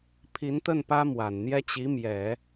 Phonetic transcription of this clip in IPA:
pʰ i˧˥ n t̪ ə˥˩ n p ä˥ m w a˨˩ n n̪ j ɛ˥ t͡ɕ i˧˥ m j ɛ˨˩˦

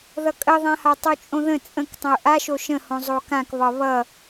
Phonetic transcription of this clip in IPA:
ð ʌ kʼ ə ðˤ ã h a tˤ o t͡ʃʼ õ ð ə̃ t͡sʼ ə̃ k tˤ ə̃ ʊ̯ ʔ a ʃ o ʃ ə̃ h õ zˤ o k ã k β ɒ β ʌ

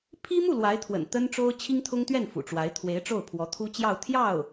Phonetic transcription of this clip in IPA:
pʰ i˥ m u˥˩ l w a˧˥ ɪ̯ t̪ʰ w ə̰˨˩ n t̪ ə˥ n ʈ͡ʂ o˥ ʊ̯ t͡ɕʰ i˥ ŋ t̪ʰ ʊ˥ ŋ t̪ ɥ ɛ˥˩ n f ṵ˨˩ ʈ͡ʂ w a˧˥ ɪ̯ t̪ʰ w e˧˥ ɪ̯ ʈ͡ʂ o˥˩ ʊ̯ pʰ w ɔ˧˥ t̪ʰ u˥ t͡ɕ j ɑ˥˧ ʊ̯ t̪ʰ j ɑ˥˩ ʊ̯

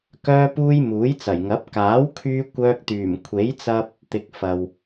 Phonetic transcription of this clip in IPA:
k œː˧ p uː˧ j m uː˨˥ j t͡s ɐ˨˩ j ŋ ɐ˨˥ p̚ k aː˨˥ w kʰ yː˧ kʷ œː˧ k̚ t̪ yː˨˩ m kʷʰ e˨˥ j t͡s ɐ˧ p̚ | t̪ ɪ˨ k̚ f ɐ˨ w

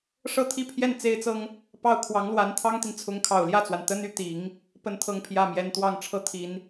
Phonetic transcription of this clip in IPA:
ʂ ɤ˥˧ t̪ʰ i˥˧ pʰ j ɛ˥˩ n t͡s e˥ ɪ̯ t͡s ɤ˥ ŋ | p ɑ˥˩ ʊ̯ kʰ w ɑ˧˥ ŋ l w a˧˥ n t̪ʰ ɑ˥ ŋ t̪ i˨ n t͡sʰ ʊ˧˥ ŋ kʰ ɑ˨˩ ʊ̯ l j ä˥˩ t͡s w a˩ n t̪ ə˥ n y˥˩ t̪ i˨˩˦ ŋ | p ə˥˧ n t̪ʰ ɤ˥˧ ŋ pʰ j ä˥˩ m j ɛ˧˥ n t̪ w ɑ˥˧ ŋ ʈ͡ʂʰ ɤ˥˩ t̪ʰ i˨˩˦ n

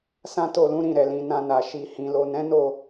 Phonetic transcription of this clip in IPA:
s ã˦ t o˦˨ l ũ˨˦ ɾ ĩ˦˨ ɾ ɛ˨ l ĩ˨ n ã˧ n a˨ ʃ i˨ h ĩ˨ l o˨ n ɛ̃˨˦ n o˦˨

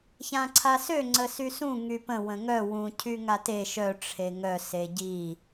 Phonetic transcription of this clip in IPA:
ç ã ǀʰ a s ø ŋ͡ǀ ə s y s ũ ŋ y p ə̃ w ə̃ ŋ œ w ũ cʰ y ŋ a t e ʃ œ ʈ͡ʂʰ e ŋ œ s e ɟ i

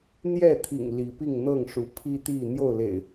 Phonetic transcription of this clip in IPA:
n̪ j ɛ˥˨ t̪ʰ ḭ˨˩ ŋ l i˨˦ p i˥˨ ŋ n̪ ɤ˥˨ ŋ ʂ u˨˦ pʰ i˦ t̪ i˥˨ n̪ j o˥˨ ʊ̯ l ḛ˨˩ ɪ̯

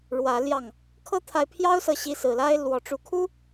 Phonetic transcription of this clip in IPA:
ɻ w ä˨˦ l j ɑ˥˨ ŋ | kʰ ɤ˦ t̪ʰ a˨˦ ɪ̯ pʰ j ɑ˦ ʊ̯ s ɤ˨˦ ɕ i˨˦ s ɹ̩˨˩ l a˦ ɪ̯ l w ɔ˨˩ ʈ͡ʂ u˨˦ kʰ u˦

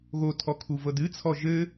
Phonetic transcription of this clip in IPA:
ɣ o tʰ ɔ kʰ u v ɤ d ɨ t͡sʰ ɔ ʒ ɘ

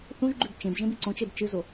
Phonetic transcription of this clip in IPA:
θ ũ ʒ ɡ͡ǃ ʉ b t͡ʃ ẽ b ʒ ẽ b i ǀ õ t͡ʃ e b t͡ʃ ɨ z o

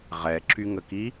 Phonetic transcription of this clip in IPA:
ʁ ɛ ǁ y ŋ ə k i

